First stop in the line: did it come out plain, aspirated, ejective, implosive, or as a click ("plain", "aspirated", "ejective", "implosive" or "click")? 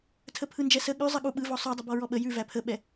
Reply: aspirated